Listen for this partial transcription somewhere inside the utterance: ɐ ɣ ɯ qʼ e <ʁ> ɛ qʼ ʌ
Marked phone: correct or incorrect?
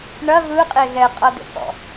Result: incorrect